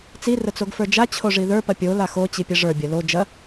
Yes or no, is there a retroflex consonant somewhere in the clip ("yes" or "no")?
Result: yes